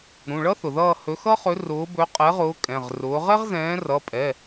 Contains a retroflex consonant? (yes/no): yes